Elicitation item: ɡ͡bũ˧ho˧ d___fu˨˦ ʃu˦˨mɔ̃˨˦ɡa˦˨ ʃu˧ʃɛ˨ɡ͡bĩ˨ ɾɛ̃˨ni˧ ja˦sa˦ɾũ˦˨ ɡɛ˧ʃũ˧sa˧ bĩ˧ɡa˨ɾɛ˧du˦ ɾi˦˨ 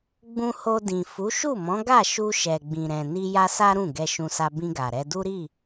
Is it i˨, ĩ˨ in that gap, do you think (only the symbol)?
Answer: ĩ˨